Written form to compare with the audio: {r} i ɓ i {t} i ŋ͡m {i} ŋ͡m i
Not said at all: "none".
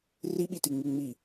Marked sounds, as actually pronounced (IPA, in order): r, t, i

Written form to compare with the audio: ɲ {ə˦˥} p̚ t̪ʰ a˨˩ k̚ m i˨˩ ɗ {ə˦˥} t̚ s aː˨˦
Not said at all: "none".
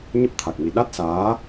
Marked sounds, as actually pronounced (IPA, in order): ə˦˥, a˦˥

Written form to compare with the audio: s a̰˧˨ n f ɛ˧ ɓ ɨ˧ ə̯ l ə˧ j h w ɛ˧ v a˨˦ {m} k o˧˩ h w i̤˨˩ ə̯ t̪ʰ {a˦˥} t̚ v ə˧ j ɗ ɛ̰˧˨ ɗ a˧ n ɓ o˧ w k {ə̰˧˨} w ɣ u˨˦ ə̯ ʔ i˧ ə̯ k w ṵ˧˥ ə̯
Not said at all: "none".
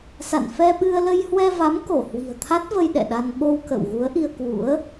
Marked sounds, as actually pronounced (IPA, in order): m, a˦˥, ə̰˧˨

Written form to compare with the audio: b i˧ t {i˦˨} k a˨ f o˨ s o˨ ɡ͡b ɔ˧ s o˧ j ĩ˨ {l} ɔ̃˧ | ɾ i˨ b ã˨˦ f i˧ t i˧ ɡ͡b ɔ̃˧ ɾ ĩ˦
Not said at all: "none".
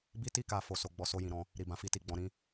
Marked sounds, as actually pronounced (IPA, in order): i˧, ɾ

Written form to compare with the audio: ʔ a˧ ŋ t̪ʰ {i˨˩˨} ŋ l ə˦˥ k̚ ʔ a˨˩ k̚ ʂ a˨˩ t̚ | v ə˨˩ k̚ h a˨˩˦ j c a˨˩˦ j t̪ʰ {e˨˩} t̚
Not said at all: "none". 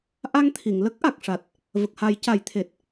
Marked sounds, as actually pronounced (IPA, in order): i˨˩˨, e˨˩

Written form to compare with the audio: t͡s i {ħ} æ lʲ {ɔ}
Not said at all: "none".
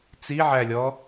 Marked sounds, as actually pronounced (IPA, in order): ʕ, ɔ

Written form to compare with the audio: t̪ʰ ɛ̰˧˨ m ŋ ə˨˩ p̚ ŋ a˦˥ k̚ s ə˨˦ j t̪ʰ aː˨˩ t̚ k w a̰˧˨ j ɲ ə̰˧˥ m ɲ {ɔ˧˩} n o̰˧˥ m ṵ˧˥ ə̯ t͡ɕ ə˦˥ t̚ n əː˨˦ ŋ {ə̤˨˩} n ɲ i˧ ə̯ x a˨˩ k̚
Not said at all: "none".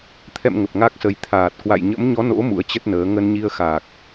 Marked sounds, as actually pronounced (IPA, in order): ɔ˨˦, ə˧

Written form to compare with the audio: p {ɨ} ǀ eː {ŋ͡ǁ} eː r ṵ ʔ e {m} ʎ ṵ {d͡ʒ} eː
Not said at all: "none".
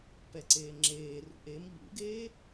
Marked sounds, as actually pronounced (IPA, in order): ɛ, ŋ͡ǁ, m, ɡ

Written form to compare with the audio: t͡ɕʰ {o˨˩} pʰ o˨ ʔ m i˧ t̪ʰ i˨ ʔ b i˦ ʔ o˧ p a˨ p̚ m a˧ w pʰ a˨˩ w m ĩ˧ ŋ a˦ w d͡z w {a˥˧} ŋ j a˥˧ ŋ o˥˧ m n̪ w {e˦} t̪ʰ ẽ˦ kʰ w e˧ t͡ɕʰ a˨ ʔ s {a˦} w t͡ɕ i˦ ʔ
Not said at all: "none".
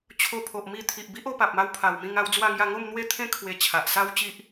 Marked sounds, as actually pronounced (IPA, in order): o˧, a˥˧, e˦, a˦

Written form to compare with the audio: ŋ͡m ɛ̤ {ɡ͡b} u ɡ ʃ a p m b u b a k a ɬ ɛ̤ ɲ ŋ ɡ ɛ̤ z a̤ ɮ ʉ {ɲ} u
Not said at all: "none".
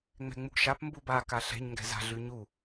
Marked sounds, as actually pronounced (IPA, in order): ŋ͡m, ɲ

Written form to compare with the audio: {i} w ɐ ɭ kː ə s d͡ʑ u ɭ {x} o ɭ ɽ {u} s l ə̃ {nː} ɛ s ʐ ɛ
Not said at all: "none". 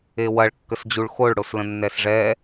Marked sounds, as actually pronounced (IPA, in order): e, x, o, nː

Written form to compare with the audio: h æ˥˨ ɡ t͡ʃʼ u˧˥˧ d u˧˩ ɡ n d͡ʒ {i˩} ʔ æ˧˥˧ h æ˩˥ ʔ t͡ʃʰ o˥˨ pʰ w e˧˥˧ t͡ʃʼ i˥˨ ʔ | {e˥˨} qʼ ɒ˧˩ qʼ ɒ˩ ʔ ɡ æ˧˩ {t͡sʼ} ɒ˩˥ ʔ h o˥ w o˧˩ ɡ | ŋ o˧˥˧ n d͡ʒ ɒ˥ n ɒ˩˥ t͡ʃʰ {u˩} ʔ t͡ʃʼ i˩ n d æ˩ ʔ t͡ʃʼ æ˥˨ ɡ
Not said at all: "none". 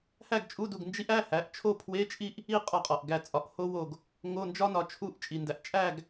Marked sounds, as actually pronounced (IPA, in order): i˥, i˥˨, t͡sʼ, u˧˥˧

